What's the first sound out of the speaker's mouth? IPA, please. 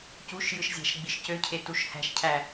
c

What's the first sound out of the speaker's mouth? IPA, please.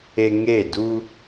e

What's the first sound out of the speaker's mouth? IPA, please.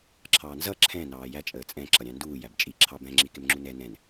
ǁʰ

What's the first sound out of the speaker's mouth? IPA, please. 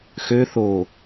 x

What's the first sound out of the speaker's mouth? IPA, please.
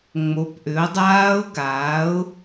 ŋ͡m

